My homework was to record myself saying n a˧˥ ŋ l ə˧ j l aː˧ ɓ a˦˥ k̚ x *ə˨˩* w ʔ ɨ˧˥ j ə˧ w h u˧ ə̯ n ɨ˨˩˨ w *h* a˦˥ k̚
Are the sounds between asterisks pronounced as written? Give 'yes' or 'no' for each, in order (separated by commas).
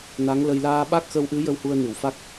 no, no